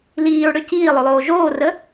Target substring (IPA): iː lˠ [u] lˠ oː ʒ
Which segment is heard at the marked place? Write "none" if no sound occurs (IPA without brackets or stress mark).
ø